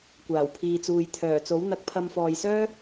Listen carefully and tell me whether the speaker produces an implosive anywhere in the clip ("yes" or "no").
no